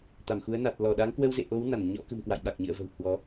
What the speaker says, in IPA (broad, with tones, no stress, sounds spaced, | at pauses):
t̪ a˧˩ m x u˨˦ ə̯ n a˨˩ t̚ l ɔ˧˩ ɗ a˨˦ ŋ k w ə˧ w z ḛ˧˨ ʔ o˨˦ w n a˧˩ n ɲ ɔ̰˧˥ k ə̤˨˩ m k w a̰˧˨ j ɓ a˨˩ k̚ ɲ ɨ̰˧˨ ə̯ v ə̤˨˩ w h w ɔ˨˦